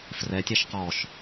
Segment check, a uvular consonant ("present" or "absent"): present